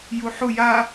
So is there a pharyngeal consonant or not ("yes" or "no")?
yes